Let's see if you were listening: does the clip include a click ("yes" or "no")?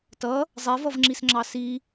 yes